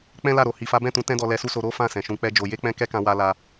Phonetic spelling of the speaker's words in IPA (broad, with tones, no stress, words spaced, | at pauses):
k͡pɛ̃˦la˦˨ɾo˨ hi˨fa˨˦bɛ̃˦˨tũ˨˦ tɛ̃˦dɔ˧ lɛ˧su˦so˧ ɾo˦fã˦˨ sɛ̃˨ʃũ˧k͡pɛ˦d͡ʒo˧ je˦k͡pɛ̃˦ kɛ˦kã˧ wa˧la˧